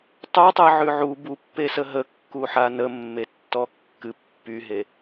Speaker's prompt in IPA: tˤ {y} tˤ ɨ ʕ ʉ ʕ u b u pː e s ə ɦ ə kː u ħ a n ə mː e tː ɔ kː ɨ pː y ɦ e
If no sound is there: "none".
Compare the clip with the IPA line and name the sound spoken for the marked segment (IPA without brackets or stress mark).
u